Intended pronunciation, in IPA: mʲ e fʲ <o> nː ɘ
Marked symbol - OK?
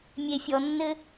no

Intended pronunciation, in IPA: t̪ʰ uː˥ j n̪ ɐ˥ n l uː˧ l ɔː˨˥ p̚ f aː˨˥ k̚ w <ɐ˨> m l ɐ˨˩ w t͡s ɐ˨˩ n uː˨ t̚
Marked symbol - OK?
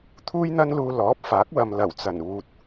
yes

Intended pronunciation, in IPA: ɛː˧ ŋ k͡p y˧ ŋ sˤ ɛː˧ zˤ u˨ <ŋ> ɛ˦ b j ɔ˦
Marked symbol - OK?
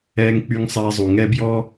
yes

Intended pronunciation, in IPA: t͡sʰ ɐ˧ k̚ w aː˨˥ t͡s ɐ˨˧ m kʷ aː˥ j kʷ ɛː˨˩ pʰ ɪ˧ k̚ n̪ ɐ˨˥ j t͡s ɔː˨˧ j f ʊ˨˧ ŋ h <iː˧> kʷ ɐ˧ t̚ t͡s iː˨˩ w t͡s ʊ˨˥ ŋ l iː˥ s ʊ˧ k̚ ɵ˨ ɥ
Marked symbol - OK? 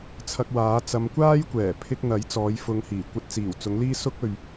no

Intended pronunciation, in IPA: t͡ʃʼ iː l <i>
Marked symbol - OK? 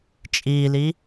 yes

